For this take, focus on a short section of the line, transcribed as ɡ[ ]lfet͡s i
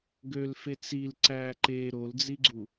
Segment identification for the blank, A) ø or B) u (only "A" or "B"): A